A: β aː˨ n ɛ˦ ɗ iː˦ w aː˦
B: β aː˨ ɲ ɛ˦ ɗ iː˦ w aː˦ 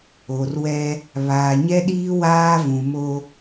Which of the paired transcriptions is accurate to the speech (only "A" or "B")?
B